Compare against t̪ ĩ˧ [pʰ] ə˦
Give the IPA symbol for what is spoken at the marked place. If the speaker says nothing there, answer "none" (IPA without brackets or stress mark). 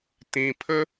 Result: pʰ